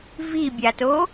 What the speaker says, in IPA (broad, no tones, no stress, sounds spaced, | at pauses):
v i bʲ a t o